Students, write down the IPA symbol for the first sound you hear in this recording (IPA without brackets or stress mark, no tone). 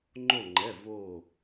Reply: ŋ͡ǃ